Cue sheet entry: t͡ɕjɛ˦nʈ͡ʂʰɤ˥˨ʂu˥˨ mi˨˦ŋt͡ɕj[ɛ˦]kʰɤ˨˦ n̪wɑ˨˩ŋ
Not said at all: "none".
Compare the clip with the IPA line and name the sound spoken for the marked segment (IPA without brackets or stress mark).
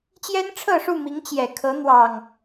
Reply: ɛ˨˩